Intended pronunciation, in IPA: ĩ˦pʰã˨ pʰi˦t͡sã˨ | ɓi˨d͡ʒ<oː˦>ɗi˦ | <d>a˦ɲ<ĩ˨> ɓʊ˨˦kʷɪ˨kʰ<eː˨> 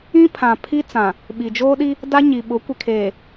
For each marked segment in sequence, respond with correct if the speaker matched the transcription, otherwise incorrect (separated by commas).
correct, correct, incorrect, correct